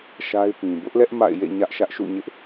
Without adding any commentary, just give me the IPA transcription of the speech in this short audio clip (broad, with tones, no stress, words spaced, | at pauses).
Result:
ʃa˦ɪ̯pĩ˨ bʊ˦ʔlɛ˦ʔ ma̰˦˨ɪ̯jḛ˦˨ ɲä˦ʔʃä˦ʔʃṵ˦˨ɲɪ˦ʔ